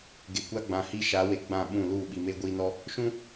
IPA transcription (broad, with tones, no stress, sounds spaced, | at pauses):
ɡ e˨ kʷ a˦ ɡ͡b ã˨ h i˦ ʃ a˨˦ w e˨ ɡ͡b ã˦˨ ɓ ũ˦˨ l uː˦˨ ɓ i˨ m e˦ ɡʷ iː˦ n ɔ˦ | ʃ ũ˦